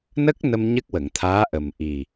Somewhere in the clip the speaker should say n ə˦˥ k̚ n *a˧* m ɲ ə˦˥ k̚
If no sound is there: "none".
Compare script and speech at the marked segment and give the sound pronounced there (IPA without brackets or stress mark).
ə˧